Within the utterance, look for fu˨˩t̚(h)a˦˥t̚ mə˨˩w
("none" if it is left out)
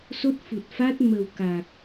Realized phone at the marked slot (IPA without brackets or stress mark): f